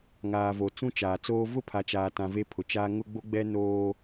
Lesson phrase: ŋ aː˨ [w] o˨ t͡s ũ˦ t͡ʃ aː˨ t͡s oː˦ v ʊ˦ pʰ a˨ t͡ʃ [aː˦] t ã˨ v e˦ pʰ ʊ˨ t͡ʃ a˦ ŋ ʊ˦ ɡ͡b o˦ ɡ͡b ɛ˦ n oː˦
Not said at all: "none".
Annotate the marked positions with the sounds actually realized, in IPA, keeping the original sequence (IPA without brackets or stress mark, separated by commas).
v, aː˨